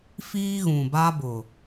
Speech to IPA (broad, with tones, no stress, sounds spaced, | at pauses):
f iː˦ ɣ ũ˨ b a˦ b ʊ˨